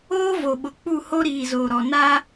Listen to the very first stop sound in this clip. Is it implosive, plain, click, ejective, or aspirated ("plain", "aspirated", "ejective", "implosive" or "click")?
implosive